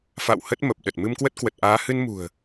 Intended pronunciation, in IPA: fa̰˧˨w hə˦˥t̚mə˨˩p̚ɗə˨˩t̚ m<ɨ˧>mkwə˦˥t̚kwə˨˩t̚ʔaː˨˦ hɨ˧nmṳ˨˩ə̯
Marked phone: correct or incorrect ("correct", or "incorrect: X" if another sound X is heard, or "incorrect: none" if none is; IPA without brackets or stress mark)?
correct